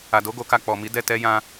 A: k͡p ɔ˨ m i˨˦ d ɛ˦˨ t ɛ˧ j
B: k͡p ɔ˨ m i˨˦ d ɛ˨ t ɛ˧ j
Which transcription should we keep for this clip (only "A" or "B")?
A